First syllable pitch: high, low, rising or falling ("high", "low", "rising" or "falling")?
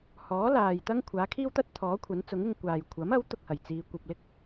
rising